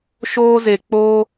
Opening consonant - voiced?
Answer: no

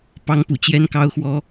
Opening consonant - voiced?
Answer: no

